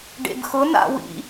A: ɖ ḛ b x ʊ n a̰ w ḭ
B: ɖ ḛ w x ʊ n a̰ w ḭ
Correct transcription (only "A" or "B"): A